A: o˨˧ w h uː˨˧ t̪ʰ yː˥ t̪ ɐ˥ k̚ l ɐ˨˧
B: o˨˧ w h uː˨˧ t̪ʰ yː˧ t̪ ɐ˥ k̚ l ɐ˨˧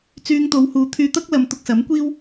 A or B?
B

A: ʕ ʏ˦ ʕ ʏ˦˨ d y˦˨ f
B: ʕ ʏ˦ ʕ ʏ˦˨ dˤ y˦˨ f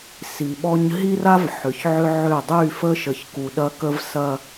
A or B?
B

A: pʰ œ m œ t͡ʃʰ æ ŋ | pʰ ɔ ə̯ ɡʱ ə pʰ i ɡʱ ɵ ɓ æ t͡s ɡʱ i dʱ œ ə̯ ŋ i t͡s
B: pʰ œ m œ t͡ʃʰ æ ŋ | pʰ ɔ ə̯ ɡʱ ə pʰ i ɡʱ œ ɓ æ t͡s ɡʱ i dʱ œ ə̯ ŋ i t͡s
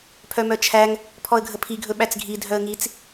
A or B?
A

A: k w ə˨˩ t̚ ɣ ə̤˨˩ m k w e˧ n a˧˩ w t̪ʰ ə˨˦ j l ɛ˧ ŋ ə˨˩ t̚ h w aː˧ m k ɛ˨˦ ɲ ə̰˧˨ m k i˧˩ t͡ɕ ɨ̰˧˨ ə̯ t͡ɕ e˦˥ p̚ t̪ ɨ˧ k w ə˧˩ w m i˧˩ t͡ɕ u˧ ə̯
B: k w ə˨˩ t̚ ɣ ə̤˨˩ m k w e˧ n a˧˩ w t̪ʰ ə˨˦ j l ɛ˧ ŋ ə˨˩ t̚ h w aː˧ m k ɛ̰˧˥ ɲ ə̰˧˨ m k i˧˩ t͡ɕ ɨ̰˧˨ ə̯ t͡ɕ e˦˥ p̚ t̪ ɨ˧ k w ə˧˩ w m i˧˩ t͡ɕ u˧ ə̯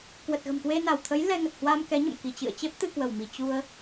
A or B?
A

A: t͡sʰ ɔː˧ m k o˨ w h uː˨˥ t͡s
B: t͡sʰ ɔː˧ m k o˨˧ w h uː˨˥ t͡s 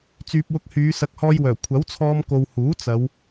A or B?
A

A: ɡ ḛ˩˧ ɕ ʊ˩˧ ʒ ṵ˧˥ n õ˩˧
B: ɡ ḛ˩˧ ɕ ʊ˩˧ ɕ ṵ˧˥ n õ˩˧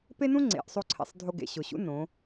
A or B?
B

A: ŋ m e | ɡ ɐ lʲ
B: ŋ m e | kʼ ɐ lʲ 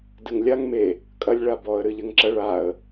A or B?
B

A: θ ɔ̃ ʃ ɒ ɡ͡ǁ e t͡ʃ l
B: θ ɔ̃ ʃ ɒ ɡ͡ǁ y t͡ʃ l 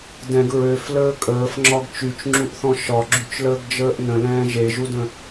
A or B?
B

